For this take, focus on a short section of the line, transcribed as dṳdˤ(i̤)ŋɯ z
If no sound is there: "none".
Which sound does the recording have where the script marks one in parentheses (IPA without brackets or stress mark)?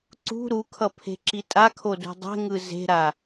e̤